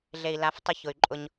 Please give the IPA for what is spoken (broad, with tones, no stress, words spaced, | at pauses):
ɮe˨i̯la˨˦ftˤʊ˧ çʊ˨y̯ǃʼʊ˧ɲ